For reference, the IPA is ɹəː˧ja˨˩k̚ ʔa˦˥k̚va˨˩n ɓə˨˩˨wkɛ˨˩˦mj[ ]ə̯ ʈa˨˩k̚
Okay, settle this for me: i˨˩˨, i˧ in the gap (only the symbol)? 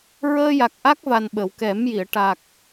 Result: i˨˩˨